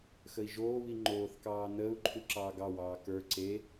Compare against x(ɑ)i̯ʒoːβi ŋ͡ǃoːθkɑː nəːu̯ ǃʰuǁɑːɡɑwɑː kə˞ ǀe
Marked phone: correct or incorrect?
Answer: incorrect: ə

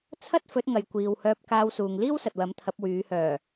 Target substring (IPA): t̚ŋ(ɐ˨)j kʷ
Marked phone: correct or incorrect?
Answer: correct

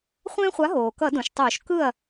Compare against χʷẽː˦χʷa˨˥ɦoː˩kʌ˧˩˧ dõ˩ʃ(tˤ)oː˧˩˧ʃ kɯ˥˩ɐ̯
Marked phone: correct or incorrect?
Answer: correct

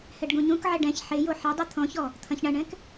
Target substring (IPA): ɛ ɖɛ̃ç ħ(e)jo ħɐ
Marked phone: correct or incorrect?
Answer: correct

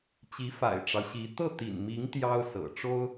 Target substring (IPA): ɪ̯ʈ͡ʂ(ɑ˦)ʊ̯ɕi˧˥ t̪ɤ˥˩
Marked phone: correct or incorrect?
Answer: correct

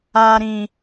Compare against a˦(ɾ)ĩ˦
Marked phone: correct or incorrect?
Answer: correct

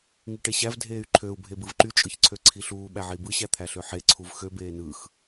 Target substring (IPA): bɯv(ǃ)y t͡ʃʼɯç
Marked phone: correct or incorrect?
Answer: correct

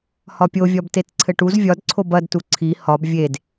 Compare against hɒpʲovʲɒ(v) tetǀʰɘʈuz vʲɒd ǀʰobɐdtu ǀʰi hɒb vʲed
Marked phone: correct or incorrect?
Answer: incorrect: b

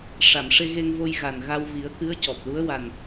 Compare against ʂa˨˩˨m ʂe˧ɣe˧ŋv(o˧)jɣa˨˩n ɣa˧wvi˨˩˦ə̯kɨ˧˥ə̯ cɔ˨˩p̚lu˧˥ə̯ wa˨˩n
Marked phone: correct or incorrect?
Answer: correct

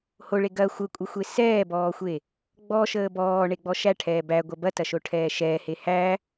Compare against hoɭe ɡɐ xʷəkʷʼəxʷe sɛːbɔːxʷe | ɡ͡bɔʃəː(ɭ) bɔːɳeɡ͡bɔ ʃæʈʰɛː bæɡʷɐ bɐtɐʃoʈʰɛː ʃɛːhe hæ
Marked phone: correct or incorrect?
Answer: incorrect: none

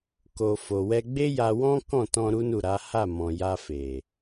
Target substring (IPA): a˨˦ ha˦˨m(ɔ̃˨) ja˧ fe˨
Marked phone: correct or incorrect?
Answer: correct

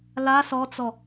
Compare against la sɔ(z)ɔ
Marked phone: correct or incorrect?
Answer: incorrect: t͡s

